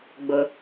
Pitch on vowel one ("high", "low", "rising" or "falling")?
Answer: high